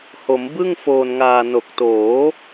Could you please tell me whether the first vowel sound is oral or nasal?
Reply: oral